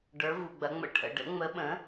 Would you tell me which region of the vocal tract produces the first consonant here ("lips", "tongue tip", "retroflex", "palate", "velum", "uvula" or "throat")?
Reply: retroflex